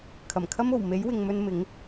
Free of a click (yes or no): yes